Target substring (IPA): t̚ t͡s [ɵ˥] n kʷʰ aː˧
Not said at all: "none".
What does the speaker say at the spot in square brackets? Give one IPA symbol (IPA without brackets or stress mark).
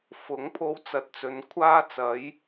ɵ˨˧